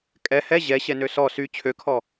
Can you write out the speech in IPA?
kʼ ɛ h ɛ ʑ ɛ ɕ ɛ n ø s ɔ s y t͡ɕʰ ø kʰ ɔ

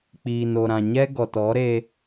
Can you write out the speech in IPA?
k͡p iː˨ n o˨ ɾ ã˨ ɲ ɛ˦ ɡ ɔ˨ t ɔ˨˦ ɾ e˧

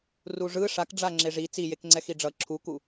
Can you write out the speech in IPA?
r u ʐ ɯ ʂ a k ɖ͡ʐ a ŋ͡ǁ e ʐ i t͡s i j e k ŋ͡ǀ ɛ x i ɖ͡ʐ ʌ ǁʰ u k u

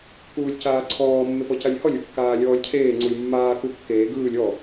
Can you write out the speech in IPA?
k uː lʲ c aː ǀʰ ɔː mː e p ɔ c a lʲ h ɔ lʲ u kː aː lʲ ɔː lʲ cʰ eː ŋ͡ǀ u lʲ mː aː k u kː eː ɡ ɯː lʲ ɔ

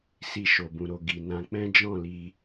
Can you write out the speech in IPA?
s i˧ ʃ o˨ b ũ˨ ɾ o˨ ɡ i˨ n ã˧ k͡p ɛ̃˦ d͡ʒ ɔ̃˦˨ l i˧

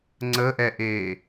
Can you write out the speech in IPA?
ŋ͡ǀ ə ʔ ɛ ʔ eː

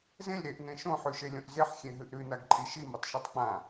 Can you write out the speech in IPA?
z ẽ lʲ ɾ e ʔ n ẽ ʃ õ ħ ʉ ʃ e lʲ õ ʔ z e ħ xʲ ẽ ɦ ɨ ʔ ɾ ʉ n a ɡ ǃʼ i ʃ i m o tˤ ʃ e tˤ k͡p ã

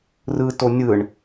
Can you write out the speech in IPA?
r ɯ t o nʲ ɯ ɳ

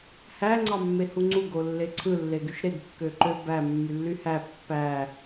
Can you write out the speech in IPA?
h æ ŋ͡ǀ ɑ mː e h u ŋ͡ǀ u ɡ o lː e ǀʰ ɯ lː e ɡ y ʃ ɾ e ɡ kː ø ǃ ø b æ mː y lː y h æ pː æ

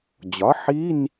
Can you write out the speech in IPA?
d͡ʑ ɒ˩˥ ħ i˧˥˧ n

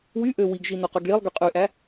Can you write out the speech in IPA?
w y ʔ ø w i ɡ ʒ i n o q ø ɡ ɭ i lˠ ɡ y qʼ y ʔ æ

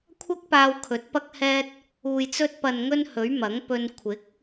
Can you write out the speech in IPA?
kʷʰ ɐ˥ k̚ p aː˧ w kʰ ɵ˨˥ t̚ p ɐ˧ k̚ h ɛː˧ t̚ | uː˨ j t͡s ɵ˧ t̚ p ɐ˨ n ŋ ɵ˧ n h ɵ˨˥ ɥ m ɐ˨˥ ŋ p ɵ˧ n kʷʰ ɪ˨˥ k̚

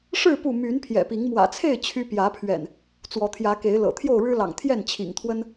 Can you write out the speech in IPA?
ʂ ɻ̩˥˨ p u˥˨ m y˨˦ n pʰ j ɛ̰˨˩ p i˨˦ ŋ m w ä̰˨˩ t͡sʰ e˥˨ ɪ̯ t͡ɕʰ y˦ p j ä˨˦ pʰ ɥ ɛ̰˨˩ n | t͡s w ɔ˨˦ t̪ʰ j ä˨˦ k e˨˦ ɪ̯ l ɤ̰˨˩ t̪ʰ j o˥˨ ʊ̯ ɻ ɻ̩˦ l ɑ̰˨˩ ŋ t̪ʰ j ɛ˥˨ n t͡ɕʰ ḭ˨˩ ŋ t̪ʰ w ə˦ n

